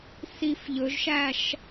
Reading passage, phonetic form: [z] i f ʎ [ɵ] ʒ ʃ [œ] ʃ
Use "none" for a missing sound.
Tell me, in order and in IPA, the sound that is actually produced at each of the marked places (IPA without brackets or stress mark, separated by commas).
s, ɵ, æ